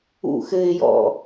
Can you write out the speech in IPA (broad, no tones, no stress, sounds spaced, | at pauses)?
ṵ x ɘ ɪ̯ j ɔ̰